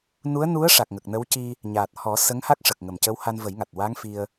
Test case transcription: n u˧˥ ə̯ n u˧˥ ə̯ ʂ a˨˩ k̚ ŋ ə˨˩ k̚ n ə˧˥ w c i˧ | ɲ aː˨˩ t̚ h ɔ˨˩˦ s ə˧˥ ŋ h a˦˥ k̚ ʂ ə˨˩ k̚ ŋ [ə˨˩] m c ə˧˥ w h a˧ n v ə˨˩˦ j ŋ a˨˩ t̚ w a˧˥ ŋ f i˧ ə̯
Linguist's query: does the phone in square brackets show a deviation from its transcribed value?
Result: no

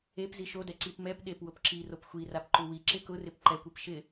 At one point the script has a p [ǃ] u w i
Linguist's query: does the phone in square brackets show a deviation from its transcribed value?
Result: no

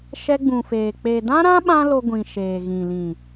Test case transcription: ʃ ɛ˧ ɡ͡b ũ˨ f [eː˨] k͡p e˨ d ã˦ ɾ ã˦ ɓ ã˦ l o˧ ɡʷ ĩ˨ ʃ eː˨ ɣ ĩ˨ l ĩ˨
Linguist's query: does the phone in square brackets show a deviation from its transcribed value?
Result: no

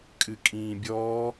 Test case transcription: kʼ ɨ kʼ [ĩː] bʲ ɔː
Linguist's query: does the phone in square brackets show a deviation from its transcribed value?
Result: no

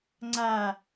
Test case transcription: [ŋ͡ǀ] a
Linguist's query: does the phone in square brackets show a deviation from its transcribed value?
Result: no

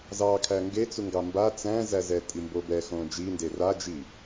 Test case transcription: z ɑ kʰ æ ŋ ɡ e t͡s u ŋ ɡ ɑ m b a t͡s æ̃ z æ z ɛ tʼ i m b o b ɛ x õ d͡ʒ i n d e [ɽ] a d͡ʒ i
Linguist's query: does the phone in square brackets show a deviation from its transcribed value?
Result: yes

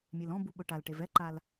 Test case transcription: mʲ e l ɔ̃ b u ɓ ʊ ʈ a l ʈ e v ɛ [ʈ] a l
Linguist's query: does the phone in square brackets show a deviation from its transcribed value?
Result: yes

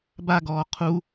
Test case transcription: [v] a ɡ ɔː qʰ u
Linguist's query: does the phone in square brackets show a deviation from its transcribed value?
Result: yes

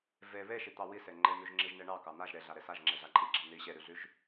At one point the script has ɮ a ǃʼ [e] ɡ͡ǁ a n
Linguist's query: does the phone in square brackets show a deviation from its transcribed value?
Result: yes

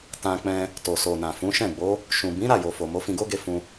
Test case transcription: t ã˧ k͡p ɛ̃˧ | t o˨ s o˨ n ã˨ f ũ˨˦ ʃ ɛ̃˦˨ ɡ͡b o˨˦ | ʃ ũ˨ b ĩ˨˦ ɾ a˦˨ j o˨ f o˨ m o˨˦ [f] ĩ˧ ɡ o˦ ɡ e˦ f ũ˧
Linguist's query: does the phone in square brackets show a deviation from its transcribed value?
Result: no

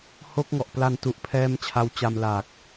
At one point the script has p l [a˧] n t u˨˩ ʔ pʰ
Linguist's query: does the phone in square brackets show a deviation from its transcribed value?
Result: no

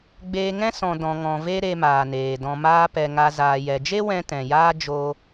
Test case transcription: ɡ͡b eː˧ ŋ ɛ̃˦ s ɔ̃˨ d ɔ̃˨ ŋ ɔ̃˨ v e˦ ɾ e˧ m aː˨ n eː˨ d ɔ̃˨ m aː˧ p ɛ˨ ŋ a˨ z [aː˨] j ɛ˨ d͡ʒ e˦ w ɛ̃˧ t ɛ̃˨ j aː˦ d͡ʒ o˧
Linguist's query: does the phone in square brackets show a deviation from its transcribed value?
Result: no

